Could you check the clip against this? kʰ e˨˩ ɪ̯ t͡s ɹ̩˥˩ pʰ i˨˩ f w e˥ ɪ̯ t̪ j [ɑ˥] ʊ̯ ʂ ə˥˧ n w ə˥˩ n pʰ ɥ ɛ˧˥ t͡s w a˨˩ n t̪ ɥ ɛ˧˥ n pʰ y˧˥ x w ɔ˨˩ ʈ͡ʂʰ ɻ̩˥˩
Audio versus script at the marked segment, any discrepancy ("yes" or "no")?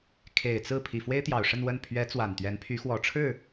yes